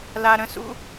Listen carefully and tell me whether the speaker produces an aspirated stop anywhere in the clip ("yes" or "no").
no